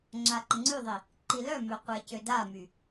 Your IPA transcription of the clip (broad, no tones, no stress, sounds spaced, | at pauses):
ŋ͡ǁ a ǃ ə ŋ͡ǀ y ðˤ i | ǃ i l œ m ø qʷ ɛ c ø d a m y